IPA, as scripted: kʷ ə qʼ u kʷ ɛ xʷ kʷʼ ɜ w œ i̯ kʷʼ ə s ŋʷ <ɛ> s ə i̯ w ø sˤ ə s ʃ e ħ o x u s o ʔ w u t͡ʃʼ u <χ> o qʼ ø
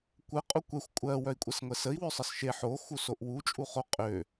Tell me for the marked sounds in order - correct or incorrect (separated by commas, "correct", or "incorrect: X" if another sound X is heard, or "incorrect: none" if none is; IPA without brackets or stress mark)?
correct, correct